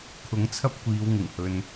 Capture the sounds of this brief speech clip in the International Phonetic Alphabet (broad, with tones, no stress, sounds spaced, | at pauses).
kʰ ʊ˨˥ ŋ t͡sʰ ɐ˥ p̚ kʷ iː˨˧ w ŋ ɪ˨˩ ŋ h ɵ˨ n